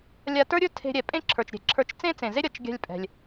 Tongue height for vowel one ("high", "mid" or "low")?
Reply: low